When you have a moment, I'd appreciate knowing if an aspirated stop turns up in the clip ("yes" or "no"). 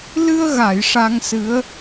no